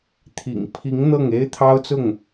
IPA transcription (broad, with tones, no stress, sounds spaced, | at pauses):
t̪ʰ ḭ˨˩ ŋ pʰ i˧˥ ŋ n̪ ɤ˥˩ ŋ e˥ ɪ̯ t̪ʰ ɑ˥ ʊ̯ t͡s ʊ˥˩ ŋ